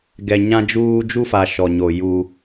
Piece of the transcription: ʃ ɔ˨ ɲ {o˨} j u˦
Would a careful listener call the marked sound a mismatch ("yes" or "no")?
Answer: no